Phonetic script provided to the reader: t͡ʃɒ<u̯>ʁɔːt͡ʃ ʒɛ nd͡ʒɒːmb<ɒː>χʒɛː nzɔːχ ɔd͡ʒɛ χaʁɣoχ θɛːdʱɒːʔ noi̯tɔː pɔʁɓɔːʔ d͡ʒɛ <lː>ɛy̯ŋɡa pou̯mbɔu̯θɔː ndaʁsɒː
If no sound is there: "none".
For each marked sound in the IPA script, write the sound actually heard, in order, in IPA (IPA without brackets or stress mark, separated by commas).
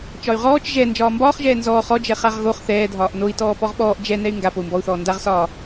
y̯, ɒː, n